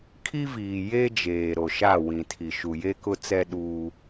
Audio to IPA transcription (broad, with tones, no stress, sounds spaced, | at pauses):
kʰ i˦ v iː˨ j eː˦ d͡ʒ eː˨ ɾ o˨ ʃ a˦˨ w ĩ˨ tʰ i˨ ʃ u˨ j e˦ k ʊ˦ t͡s ɛ˦ ɗ u˦